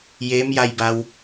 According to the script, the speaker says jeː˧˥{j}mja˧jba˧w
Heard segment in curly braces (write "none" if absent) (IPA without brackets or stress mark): none